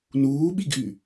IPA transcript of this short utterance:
n uː ɓ i ɡ ʔ y

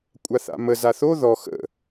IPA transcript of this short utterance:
kʷʼ a θ a̰ m ə z a θ o ð ɔ x ə̰

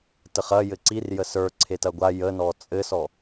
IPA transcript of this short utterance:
t ə χ ɐ j ɘ ǀ i r j ə s ə˞ ǀʰ e t ɐ ɡʷ a j ə n ɔ t͡sʼ ɘ s ɔ

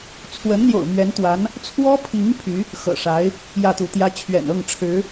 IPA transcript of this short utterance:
t͡sʰ w ə˧˥ n n̪ j o̰˨˩ ʊ̯ m ɥ ɛ˧˥ n t̪ w a˧˥ n | t͡sʰ w ɔ˥ pʰ i˧˥ ŋ pʰ y˧˥ | x ɤ̰˨˩ ʂ a˧˥ ɪ̯ | j ä˥˩ t̪ u˧˥ t̪ j ä˥ t͡ɕʰ ɥ ɛ̰˨˩ n ɤ˥˩ ŋ ʈ͡ʂʰ ɻ̩˧˥

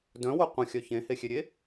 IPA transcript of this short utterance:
d œ̃ w o qʷ ə̃ xʲ œ ç ẽ h e xʲ e ɾʲ e

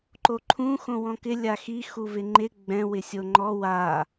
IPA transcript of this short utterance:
ǃ o ǃʰ ũ x õ w ɔ̃ k ɪ lʲ a x i x u v ɪ ŋ͡ǃ ɪ ɡ͡b ɛ̃ w ɪ sʲ o ŋ͡ǃ ɔ w a

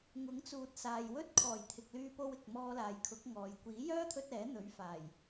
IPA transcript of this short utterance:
ŋ ʊ˨˥ ŋ t͡s uː˨ t̚ s aː˨ j w ɵ˥ t̚ kʰ ɔː˨˩ j t̪ʰ ɪ˨ k̚ l yː˧ p o˧ w ɪ˨ k̚ m ɔː˧ l aː˨ j kʰ ʊ˨˥ k̚ ŋ ɔː˨ j kʷ iː˨˥ j œː˥ t̪ʰ ɵ˧ t̚ ɛː˨˥ n̪ ɵ˨˥ ɥ f aː˨˩ j

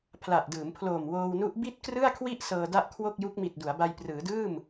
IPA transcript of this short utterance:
pʰ l a˨˩ ʔ d ɯː˩˦ m pʰ l oː˨˩ m w oː˧ w n u˦˥ ʔ b i˥˩ t̚ k r ɯ˥˩ a̯ kʰ w i˥˩ ʔ s ɤː˧ d a˥˩ ʔ kʰ w o˥˩ k̚ j u˦˥ k̚ m i˨˩ t̚ d u˩˦ a̯ b a˧ j p r ɯː˩˦ d ɯː˥˩ m

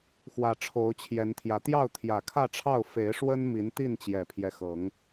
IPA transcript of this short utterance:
x w ä˨˩ ʈ͡ʂʰ o˨˦ ʊ̯ t͡ɕʰ j ɛ˨˦ n t̪ʰ j ä˨˦ t̪ j ɑ˥˨ ʊ̯ t̪ʰ j ä˨˩ kʰ ä˥˨ ʈ͡ʂʰ ɑ˥˨ ʊ̯ f e˨˦ ɪ̯ ʂ w ə˦ n m i˨˦ n t̪ i˥˨ n t͡ɕ j ɛ˨˩ pʰ j ɛ˦ x ɤ˨˦ ŋ

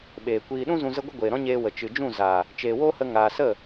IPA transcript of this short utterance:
ɓ eː˨ kʷ iː˧ ɗ ũ˦ z ũ˧ z ə˦ ɡʷ ə˦ ɡʷ eː˨ ɾ ɔ̃˦ ɲ eː˧ w ə˨ t͡ʃ ɨ˨ d͡ʒ ũ˦˨ z aː˨ | t͡ʃ eː˨ w oː˦ h ə˧ ŋ aː˨ s ə˦˨

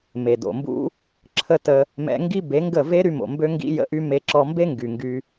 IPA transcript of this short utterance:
m e˨ d o̰˨ m b ṵ˦ | ǁʰ ə˧ t ə˧ | m ɛ̰˧ ŋ ɡ i˦ b e˨˦ ŋ ɡ ə˦˨ v e˦ ɾ y˦ m o̰˨ m b ø˧ ŋ ɡ ḭ˧ j ə̰˧ ʔ y˧ m e˧ ǁ ɔ˧ m b e˦ ŋ ɡ y˨ ŋ ɡ y˧

